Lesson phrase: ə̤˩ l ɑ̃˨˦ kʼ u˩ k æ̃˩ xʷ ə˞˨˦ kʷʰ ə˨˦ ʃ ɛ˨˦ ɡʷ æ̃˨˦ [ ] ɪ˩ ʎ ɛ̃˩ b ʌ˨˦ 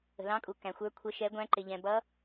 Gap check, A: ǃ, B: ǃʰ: A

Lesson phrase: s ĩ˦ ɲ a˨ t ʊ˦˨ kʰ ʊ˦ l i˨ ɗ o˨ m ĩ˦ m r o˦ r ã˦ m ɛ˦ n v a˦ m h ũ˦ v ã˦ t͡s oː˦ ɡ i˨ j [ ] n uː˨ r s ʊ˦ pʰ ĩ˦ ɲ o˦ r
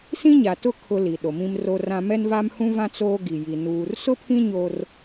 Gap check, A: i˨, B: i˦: A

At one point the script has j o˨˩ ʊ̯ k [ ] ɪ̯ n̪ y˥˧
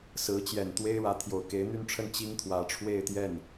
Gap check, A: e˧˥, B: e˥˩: A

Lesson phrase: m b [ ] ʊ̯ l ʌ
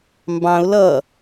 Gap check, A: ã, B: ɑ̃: B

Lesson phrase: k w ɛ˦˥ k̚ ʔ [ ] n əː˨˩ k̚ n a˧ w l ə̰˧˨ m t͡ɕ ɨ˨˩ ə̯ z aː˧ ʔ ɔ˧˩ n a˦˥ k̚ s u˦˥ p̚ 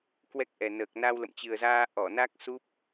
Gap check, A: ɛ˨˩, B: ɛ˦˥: A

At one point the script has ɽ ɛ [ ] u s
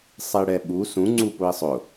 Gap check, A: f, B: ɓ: B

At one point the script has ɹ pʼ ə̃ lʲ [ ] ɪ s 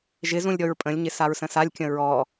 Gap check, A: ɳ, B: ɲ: B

